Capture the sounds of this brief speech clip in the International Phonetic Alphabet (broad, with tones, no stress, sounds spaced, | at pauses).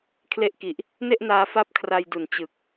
kʰ l e˦˥ ʔ k i˨˩ ʔ | n e˥˩ ʔ n aː˧ f a˦˥ p̚ kʰ r a˧ j d u˨˩ n t͡ɕ ɯ˨˩ k̚